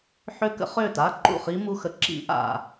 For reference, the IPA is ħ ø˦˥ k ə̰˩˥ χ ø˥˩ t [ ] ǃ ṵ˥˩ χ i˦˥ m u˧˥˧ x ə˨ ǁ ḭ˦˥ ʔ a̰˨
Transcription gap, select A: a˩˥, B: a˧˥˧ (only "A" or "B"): B